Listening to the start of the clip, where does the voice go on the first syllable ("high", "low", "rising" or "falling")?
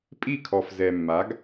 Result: falling